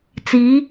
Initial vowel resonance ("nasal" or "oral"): oral